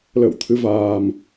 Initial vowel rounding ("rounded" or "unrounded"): unrounded